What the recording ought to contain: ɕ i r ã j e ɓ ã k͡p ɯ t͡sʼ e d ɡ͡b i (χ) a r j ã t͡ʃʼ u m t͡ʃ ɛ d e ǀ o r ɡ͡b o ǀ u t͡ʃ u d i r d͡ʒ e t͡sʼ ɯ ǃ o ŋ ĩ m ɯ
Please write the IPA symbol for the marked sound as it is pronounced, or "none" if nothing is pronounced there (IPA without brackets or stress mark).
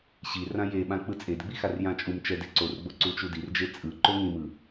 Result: x